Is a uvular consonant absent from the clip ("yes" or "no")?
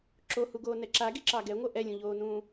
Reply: yes